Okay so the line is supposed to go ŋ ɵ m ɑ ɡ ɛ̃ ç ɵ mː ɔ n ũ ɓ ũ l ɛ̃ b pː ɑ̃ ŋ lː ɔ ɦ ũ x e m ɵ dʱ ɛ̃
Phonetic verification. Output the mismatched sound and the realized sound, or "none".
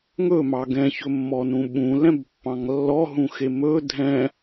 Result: none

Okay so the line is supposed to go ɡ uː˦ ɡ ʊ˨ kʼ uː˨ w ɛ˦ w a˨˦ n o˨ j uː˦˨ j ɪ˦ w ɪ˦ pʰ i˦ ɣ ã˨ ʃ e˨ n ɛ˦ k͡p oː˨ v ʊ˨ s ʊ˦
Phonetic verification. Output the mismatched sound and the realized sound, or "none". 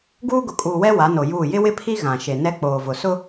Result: none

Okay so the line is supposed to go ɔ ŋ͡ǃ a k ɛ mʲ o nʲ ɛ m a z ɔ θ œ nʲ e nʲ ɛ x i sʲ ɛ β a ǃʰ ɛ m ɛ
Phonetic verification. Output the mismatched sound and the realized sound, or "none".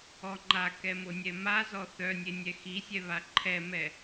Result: mʲ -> m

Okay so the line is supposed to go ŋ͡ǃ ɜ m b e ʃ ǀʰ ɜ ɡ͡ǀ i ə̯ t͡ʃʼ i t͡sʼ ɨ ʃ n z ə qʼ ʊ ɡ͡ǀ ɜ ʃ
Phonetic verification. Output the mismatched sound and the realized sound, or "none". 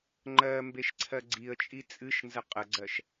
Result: ʊ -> ə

